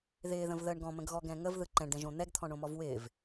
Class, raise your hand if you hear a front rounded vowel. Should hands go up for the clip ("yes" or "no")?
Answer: no